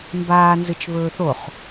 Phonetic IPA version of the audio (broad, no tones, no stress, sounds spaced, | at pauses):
m b aː n z ɨ t͡ʃ β ɵː θ o χ